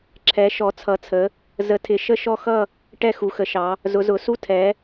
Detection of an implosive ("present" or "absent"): absent